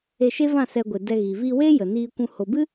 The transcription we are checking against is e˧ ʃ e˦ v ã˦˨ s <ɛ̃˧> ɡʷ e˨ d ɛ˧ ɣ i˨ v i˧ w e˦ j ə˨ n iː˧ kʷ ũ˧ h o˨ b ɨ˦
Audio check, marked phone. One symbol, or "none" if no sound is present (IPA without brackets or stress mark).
ɛ˧